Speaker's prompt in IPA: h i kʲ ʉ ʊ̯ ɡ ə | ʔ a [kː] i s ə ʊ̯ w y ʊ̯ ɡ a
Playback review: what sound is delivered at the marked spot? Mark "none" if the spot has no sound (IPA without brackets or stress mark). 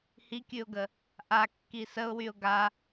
kː